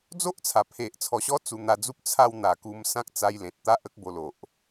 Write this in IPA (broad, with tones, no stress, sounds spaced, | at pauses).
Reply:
d͡z o˦ ʔ t͡sʰ a˨˩ pʰ e˨ ʔ t͡sʰ ɔ˨˩ ɕ ɔ˧ t͡s u˧ n̪ a˧ d͡z u˦ p̚ t͡sʰ a˥˧ w n̪ a˨˩ k u˧ m s ã˦ k̚ t͡s a˧ j l ẽ˨ t̚ t̪ a˦ ʔ ə˦ k̚ b o˧ l o˨ ʔ